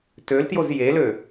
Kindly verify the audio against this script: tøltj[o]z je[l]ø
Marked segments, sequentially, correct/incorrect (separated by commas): correct, correct